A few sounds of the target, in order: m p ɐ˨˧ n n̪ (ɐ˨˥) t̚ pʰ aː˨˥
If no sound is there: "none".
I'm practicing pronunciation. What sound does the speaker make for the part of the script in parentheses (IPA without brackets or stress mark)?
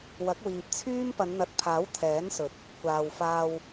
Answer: ɐ˨˥